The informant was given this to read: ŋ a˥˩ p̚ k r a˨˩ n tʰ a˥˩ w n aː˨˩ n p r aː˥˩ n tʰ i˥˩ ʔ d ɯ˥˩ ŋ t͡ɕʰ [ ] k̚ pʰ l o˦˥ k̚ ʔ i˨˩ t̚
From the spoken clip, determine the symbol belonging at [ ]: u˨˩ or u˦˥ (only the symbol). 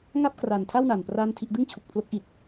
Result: u˨˩